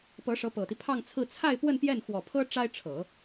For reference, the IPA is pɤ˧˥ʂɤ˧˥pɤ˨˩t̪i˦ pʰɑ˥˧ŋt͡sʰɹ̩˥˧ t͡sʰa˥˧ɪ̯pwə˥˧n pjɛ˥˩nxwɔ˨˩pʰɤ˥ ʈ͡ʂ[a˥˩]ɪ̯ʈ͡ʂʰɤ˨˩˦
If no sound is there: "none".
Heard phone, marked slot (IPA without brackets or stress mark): a˥